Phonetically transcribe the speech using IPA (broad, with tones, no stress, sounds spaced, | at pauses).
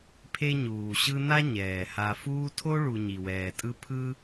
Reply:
pʰ e˦ ɲ uː˩ ɕ ɯ˦ n a˥ ɲ ɛː˩ h a˨ f uː˦ tʰ o˥ ɭ u˨ ɲ i˩ w ɛː˩ tʼ ɯ˦ pʰ ɯ˦